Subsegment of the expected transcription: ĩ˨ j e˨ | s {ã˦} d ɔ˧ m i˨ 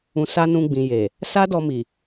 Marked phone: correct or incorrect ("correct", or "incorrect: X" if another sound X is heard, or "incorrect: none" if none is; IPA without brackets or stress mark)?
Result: incorrect: a˦